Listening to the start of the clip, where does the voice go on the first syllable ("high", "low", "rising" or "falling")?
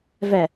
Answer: low